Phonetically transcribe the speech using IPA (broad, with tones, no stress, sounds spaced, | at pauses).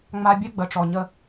ŋ͡m a˦ bʲ ɛ˦ ɡ͡b ə˨ ʈ͡ʂ ɔ˨ ɲ ə˦